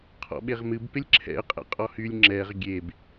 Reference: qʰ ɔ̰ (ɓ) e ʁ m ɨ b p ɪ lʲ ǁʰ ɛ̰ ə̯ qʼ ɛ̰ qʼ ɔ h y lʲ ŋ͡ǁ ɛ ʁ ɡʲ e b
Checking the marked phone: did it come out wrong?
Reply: no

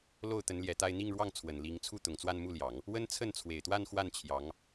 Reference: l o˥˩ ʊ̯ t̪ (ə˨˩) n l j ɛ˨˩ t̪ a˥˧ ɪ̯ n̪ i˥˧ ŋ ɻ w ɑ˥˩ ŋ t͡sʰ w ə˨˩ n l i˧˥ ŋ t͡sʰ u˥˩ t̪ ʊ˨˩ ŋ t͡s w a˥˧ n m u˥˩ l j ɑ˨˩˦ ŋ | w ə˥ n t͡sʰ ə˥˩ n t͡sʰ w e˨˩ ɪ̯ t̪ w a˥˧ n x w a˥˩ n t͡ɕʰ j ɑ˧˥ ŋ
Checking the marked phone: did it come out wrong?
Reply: yes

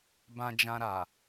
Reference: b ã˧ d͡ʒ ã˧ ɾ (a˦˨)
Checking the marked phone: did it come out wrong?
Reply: yes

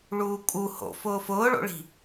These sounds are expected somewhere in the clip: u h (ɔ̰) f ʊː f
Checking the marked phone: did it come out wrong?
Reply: yes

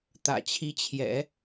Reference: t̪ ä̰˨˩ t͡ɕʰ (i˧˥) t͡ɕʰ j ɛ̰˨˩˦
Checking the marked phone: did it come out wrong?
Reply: no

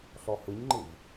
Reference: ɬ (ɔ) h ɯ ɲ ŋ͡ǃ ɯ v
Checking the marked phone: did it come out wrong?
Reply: no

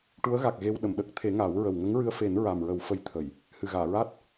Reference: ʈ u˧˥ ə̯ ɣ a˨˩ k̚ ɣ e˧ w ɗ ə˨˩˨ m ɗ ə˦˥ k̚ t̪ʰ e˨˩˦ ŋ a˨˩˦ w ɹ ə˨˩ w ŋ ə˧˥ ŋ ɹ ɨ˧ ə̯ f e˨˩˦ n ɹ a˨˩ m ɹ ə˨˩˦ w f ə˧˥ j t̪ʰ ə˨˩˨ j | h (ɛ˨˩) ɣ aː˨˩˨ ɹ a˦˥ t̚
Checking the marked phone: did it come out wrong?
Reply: yes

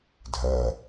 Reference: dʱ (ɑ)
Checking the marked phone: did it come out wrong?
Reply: yes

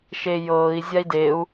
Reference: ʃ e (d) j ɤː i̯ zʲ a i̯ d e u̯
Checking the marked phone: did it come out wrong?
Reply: yes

